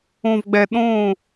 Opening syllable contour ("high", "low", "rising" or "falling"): low